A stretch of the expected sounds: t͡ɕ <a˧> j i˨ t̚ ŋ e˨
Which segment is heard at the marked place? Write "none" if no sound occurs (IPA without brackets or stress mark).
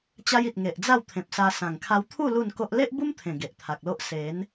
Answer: a˦